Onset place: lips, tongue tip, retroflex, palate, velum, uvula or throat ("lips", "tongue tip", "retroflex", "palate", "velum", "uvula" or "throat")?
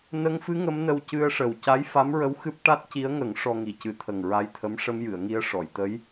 tongue tip